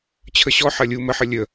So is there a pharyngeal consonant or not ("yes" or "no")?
yes